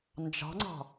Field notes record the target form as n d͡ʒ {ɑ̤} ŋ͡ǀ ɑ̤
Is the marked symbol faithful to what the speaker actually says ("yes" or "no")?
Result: yes